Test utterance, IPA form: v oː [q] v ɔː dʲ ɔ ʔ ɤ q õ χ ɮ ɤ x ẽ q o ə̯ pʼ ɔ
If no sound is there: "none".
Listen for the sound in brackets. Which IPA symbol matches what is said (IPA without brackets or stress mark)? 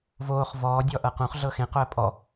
χ